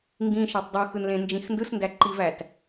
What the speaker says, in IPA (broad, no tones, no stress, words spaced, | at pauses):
ŋɡĩ ʃɑtˤdˤuxɯn lẽnd͡ʒĩxndɯsndæ ǃivæt